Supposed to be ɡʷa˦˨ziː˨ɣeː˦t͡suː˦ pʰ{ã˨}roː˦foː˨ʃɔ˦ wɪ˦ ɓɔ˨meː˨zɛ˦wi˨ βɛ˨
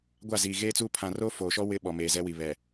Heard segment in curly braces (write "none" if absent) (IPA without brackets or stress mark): ã˨